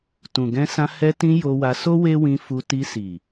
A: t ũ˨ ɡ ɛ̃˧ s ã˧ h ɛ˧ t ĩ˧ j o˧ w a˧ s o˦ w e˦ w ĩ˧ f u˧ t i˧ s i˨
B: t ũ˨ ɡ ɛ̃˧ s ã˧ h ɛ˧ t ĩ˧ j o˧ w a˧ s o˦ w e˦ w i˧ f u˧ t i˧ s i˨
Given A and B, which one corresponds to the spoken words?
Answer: A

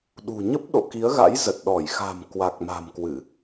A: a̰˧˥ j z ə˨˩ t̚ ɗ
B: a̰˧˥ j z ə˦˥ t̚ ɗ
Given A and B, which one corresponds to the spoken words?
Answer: A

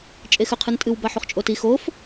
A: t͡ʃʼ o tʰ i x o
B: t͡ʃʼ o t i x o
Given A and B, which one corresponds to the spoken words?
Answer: B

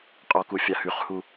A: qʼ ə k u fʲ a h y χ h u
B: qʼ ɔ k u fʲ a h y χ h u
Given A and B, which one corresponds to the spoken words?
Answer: B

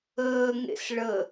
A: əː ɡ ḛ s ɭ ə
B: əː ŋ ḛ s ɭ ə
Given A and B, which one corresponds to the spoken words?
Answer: B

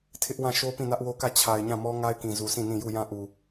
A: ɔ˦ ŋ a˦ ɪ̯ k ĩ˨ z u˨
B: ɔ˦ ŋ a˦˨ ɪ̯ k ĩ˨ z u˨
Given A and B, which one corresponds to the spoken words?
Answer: A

